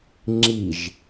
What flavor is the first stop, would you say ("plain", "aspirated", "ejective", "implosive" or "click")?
click